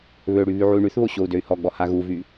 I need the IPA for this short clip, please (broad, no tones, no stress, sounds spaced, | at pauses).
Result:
β ø ɽ y β y ʕ u y̯ ɳ y θ β o ɕ o u̯ d ø y̯ h ɔ ɡ͡b ɔ h a ɣ u v y